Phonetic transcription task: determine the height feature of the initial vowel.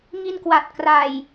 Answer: high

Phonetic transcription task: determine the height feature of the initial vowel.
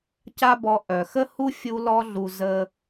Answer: low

